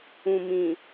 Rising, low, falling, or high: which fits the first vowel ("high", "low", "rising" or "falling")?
low